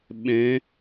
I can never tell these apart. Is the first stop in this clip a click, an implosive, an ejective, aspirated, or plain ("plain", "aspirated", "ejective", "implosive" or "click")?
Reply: implosive